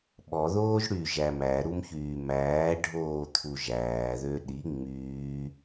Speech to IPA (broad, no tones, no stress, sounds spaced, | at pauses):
ɓ ɔ ð oː ʒ ɽ y ʒ æ m æ ɾ u m ç yː m æː ɖʱ oː t̪ʰ u ʒ æː ð ø ɗ i ŋ͡m yː